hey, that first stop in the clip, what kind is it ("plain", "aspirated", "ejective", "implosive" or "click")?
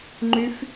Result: click